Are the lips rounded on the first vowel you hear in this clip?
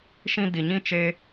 no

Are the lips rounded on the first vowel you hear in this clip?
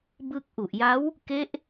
no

